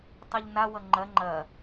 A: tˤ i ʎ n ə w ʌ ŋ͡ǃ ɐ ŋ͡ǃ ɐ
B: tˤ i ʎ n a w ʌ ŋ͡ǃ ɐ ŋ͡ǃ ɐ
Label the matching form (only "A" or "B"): B